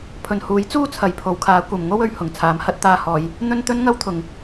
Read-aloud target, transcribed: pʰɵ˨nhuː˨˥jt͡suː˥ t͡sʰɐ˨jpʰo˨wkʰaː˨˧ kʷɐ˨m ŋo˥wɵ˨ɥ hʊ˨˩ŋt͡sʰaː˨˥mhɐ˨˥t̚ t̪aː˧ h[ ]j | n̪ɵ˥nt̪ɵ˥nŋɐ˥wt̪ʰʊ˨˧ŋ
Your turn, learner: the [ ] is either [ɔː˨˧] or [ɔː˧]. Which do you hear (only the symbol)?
ɔː˨˧